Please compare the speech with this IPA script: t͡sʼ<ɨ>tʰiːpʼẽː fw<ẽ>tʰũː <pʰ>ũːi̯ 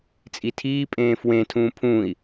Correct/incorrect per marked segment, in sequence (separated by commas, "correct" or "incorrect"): incorrect, correct, correct